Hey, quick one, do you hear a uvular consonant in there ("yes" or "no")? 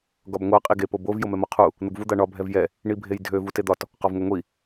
yes